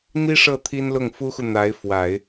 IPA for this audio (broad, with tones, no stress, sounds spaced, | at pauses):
n̪ i˥ ʂ ɤ˥˩ t̪ʰ i˥ n l ʊ˥˩ ŋ f u˥ x u˨ n̪ a˧˥ ɪ̯ f w a˨˩˦ ɪ̯